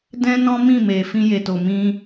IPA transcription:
d ɛ̃˦ n ɔ̃˦ m ĩ˦˨ m e˨ f ĩ˧ j e˨ t o˨ m ĩ˧

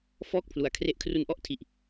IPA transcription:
f ɔː˥˩ k̚ pʰ l u˩˦ a̯ kʰ r e˦˥ ʔ kʰ r u˦˥ n ʔ ɔ˦˥ ʔ tʰ i˨˩ ʔ

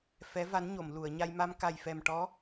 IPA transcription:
f ɛ˧˥ v a˧˥ n ɲ o˨˩˨ m l u˨˩˨ ə̯ ɲ a˧ j m a˧ m k a˨˩ j f ɛ˨˩ m ʈ ɔ˧˥

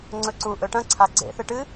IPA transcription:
ŋ͡ǀ ɵ ǀ u ʔ ɵ ʈ ɐ̃ ǀʰ a ɡ͡ǀ ḛ θ ɨ ʈ ɨ

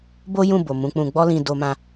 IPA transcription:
b o˦ j ũ˦˨ b o˨ m ũ˨˦ k͡p ũ˧ ɡ͡b ɔ˦ l ĩ˧ d o˧ m ã˧

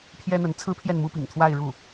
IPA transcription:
pʰ j ɛ˥ n̪ ə˧˥ n t͡sʰ ɹ̩˥ pʰ j ɛ˥˩ n m u˥ p ḭ˨˩ ŋ t̪ʰ w a˥˧ ɪ̯ ɻ u˥˩

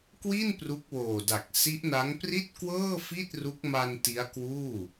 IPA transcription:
k w i˥˩ n p r u˦˥ k̚ w oː˨˩ d a˨˩ k̚ s i˦˥ ʔ n a˦˥ ŋ p r i˥˩ t̚ k w ɤː˥˩ f i˥˩ t̚ r u˦˥ k̚ m a˧ n t i˦˥ a̯ k w uː˥˩

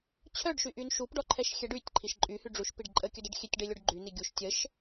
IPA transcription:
t͡ɕʰ œ ɖ ʃ y ʔ y n ʃ u p ɖ ɔ ǃʰ ɛ ʃ xʲ ɛ ɖ y tʲ ǃʰ i ʃ ǃʼ y h y ɖ͡ʐ u ʃ p i ɖ ǃʼ ə kʲ œ d ɛ ɖ xʲ e tʲ ɖ e lʲ o ɖ ɡ͡ǃ y n i ɡʲ u ʃ tʲ ə ʃ

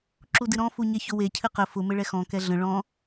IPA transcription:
ǁ u d ɨ ɾ ɔ̃ f u ɲ ɛ ç ʊ w e cʰ ɨ q ə f ʊ m ɘ ɭ ɛ x ɔ̃ k ɛ ɮ ə̃ ɭ ɔ̃

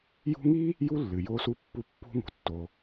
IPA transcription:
j ṳ˦ ŋ i˥ | j u˥ lː ɨ˩ j o˦ s u˦ pː u˦ pː ṳ˥ ŋ ṳ˩ tː o˨

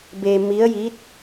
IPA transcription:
b e˧ m i˧˥ ə̯ j i˧˥ t̚

